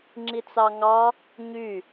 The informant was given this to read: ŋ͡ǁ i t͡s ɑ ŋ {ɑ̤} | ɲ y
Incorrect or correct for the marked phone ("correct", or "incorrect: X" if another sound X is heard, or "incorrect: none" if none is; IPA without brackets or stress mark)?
incorrect: ɑ